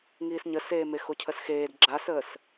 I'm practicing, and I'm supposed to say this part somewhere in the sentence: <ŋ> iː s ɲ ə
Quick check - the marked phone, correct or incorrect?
correct